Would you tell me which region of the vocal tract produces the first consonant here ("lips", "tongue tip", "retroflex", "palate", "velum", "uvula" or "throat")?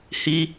throat